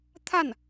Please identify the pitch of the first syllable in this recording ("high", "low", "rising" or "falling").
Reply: falling